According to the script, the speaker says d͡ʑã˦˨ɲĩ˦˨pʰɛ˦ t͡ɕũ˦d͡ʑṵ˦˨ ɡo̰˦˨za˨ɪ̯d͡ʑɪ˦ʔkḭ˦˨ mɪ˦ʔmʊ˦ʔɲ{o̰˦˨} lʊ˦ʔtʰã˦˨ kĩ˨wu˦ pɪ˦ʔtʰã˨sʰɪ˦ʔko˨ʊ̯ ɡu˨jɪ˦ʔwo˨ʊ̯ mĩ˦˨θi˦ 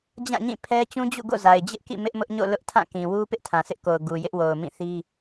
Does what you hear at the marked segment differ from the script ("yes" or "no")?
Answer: no